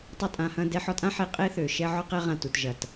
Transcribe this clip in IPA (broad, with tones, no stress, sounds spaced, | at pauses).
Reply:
tˤ ʏ˦ tʼ ã˧ h ɐ̃˦ d ɛ˧ ħ ɔ˧ tʼ ã˦ ħ e˨˦ qʼ e˦ θ ø˨ ʃ ɛ˦ ʕ ɔ˦ q ɛ˦ ʁ ã˨ t u˨ t ʒ ɐ˨ t